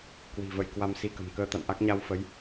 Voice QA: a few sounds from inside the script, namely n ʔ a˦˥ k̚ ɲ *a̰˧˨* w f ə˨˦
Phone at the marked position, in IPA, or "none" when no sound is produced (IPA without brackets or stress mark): a˧